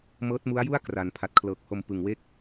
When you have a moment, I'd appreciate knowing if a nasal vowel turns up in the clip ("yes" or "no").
no